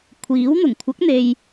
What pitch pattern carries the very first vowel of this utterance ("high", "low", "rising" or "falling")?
rising